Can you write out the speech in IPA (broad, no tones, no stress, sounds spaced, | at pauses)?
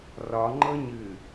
r ɒ ŋ͡ǃ ɤ ɲ ɨː